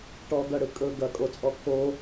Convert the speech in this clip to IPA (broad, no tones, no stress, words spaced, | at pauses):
ʈɔɡʌɽɯ kʼɵ ɡɐkʼot͡sʼɔ kʰo